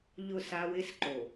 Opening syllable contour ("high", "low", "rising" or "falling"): falling